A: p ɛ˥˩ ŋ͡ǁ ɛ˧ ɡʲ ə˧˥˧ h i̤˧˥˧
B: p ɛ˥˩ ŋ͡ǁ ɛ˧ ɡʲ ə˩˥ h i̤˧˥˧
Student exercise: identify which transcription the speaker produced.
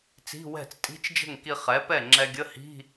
A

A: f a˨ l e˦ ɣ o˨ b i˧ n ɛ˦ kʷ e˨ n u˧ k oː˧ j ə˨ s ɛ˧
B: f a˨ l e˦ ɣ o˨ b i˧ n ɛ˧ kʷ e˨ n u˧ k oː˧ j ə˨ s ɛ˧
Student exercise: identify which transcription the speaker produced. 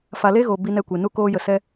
B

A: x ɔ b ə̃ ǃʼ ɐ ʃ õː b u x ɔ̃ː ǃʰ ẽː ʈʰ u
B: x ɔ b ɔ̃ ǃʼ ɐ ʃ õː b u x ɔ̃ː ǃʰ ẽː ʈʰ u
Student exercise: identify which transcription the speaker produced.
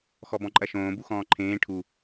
B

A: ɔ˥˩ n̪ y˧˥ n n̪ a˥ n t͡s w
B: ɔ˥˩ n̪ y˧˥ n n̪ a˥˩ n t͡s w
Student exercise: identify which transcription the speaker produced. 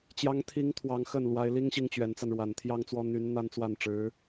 A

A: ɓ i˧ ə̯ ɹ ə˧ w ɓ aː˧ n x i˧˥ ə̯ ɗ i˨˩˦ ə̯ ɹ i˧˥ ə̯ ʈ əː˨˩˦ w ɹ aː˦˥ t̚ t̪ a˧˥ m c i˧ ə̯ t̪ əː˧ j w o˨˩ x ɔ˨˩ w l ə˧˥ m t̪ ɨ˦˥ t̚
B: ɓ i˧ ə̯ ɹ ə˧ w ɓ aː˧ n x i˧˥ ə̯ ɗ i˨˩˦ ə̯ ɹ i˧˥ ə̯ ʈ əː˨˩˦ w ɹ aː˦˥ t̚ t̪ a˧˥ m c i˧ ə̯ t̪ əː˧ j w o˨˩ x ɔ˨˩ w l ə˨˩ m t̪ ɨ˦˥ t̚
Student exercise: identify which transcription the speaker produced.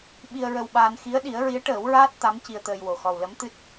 A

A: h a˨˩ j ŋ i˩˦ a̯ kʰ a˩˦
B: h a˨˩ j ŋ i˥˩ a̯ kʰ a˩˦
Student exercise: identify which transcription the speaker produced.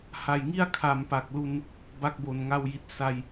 B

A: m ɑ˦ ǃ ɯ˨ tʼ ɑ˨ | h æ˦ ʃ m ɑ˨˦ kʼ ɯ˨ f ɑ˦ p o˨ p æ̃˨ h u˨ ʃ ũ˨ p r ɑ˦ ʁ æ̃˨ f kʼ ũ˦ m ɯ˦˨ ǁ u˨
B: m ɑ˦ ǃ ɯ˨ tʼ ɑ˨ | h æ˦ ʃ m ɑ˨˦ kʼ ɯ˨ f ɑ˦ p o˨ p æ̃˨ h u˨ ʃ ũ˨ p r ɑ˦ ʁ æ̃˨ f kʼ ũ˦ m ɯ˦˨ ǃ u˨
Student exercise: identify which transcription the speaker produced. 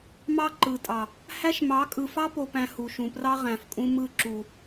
A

